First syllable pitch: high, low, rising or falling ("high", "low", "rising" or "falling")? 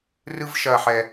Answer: high